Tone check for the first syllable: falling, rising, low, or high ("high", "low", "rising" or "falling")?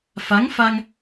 rising